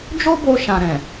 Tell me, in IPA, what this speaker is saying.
d͡ʒ o˦ b o˧ ʃ ã˨ ɾ ɛ̃˨

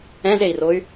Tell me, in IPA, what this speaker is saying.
ɛ̃ z e i̯ r o y̯

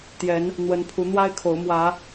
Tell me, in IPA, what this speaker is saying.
t̪ j ɛ˨˦ n | n̪ w ə˨˦ n pʰ u˨˦ n̪ w a˦ ɪ̯ kʰ o˨˦ ʊ̯ m w ä˨˦

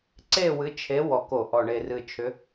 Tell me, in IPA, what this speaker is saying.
ǀ e˦˨ w ɨ˨˦ t͡ʃʰ e˨˦ w ɔ˨˩ k o˧˩˧ ʔ ɔ˨˩ ɳ e˨˩ r ɨ˨˩ t͡ʃʰ ʏ˨˦

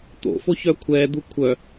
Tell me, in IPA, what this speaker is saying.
t̪ o̰ f o ç œ kʷʰ ɛ d̪ u kʷʰ œ

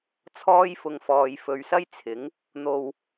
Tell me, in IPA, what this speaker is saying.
t͡sʰ ɔː˥ j f ʊ˨ ŋ f ɔː˨ j f ɵ˨ ɥ s ɐ˥ j t͡sʰ ɪ˨˥ ŋ | n̪ o˧ w

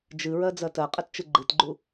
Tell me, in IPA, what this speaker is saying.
d͡ʒ ɨ ɹ ɜ d͡z ɜ t ɜ qʼ ɨ t t͡ʃ ɨ ɡ͡ǃ ɨ t ɡ͡ǃ u

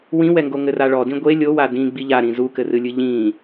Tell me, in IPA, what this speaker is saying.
w ĩ w ɛ ŋ ɡ o ŋ ɘ r a ɭ ɔ d ĩ ɡʷ e lʲ o w a d ĩ ɡ͡b i ʎ a ɾ ĩ z u k ɘ r ɨ lʲ ɨ ʎ ĩ

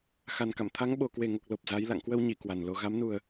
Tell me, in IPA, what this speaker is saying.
x a˨˩ n k a̰˧˨ m t̪ʰ a˨˦ ŋ ɓ o˨˩ k w e˨˩ ŋ o˨˩ k̚ l o˨˩ p̚ z a˨˦ j l a̰˧˨ ŋ k w ə˧ w ɲ i˧˩ k w a˨˩ n l o˧ ɣ a˨˦ m n u˨˩ ə̯

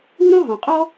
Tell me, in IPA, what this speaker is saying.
u˥ ɾ õ˥ ɦ ɔ̃˩ qʼ ɔ˥

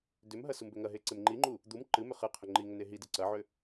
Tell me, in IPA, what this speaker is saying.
d ʏ m ɦ ɐ s u m b ʏ ŋ ɐ ɦ e ǀ e m ŋ͡ǃ i ŋ͡ǃ u | d̪ u m ǃ ɨ m ʏ χ ɨ qʰ ʏ ŋ͡ǃ i ŋ ʏ n e ɦ i d ɨ ǀ ɐ ʕ ʏ

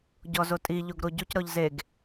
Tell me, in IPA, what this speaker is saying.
ɟ ɔ z o tʼ i ʎ o ɡ ɾ o ɟ u c ɾ ɔ ʎ z e ɡ

